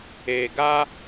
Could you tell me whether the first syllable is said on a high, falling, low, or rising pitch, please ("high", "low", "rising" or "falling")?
low